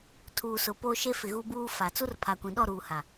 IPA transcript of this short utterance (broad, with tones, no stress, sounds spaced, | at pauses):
tʰ uː˨ s ʊ˨ p o˦ ʃ e˦ f ɪ˨ ɣ u˦ b uː˦ f a˨ t͡s u˦ r pʰ a˨ kʷ ĩ˨ ɗ ɔ˦˨ ɾ uː˨ h a˨